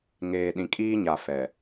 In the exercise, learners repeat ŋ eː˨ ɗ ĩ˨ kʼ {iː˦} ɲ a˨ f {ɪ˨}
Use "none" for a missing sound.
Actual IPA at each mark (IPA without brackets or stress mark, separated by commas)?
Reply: iː˦, ɛ˨